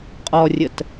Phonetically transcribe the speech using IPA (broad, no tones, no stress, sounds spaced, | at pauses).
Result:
qʼ ɔ rʲ ə t